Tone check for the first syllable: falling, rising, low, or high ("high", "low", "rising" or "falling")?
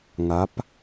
rising